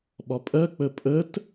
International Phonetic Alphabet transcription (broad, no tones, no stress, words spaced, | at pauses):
ɓɒpʼɜ k͡pəpʼət